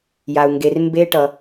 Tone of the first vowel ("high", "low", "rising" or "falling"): low